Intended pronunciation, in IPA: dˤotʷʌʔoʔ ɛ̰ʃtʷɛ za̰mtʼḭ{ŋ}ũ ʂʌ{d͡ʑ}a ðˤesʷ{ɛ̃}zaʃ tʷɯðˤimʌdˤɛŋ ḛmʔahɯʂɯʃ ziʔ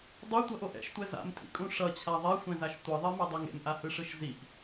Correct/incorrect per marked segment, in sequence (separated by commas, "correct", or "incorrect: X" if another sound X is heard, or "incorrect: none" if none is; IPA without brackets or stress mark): incorrect: kʼ, incorrect: t͡ɕʰ, correct